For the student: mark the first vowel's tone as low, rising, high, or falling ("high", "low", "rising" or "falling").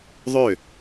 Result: falling